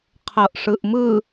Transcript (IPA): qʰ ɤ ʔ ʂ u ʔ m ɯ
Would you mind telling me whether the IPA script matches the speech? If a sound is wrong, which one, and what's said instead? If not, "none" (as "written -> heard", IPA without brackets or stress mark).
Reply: u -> ɯ